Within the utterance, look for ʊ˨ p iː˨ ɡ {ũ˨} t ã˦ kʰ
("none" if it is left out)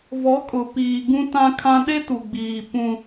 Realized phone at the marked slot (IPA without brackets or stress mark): ũ˦